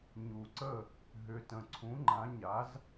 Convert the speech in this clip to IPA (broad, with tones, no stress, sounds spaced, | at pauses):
ɲ u˨ ǀ ə˥˨ | ɦ ʏ˨ t ə̃˨ ǀʰ ũ˨˥ ŋ͡ǃ ã˨˥ ɲ a˨˥ z